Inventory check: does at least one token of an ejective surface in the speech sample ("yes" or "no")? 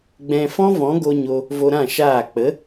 no